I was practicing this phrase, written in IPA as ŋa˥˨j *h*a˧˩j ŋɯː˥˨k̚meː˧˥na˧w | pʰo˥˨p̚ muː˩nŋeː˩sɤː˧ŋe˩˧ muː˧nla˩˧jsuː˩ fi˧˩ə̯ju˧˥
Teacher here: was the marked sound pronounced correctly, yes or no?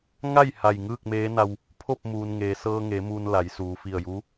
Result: yes